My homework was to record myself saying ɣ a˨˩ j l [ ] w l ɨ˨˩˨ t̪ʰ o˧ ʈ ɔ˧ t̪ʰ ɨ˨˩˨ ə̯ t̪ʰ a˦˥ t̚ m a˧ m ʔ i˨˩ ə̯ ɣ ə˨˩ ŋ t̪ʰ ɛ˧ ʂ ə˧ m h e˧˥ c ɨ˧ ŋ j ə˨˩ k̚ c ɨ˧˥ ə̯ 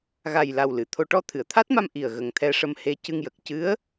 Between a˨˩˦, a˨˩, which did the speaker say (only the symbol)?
a˨˩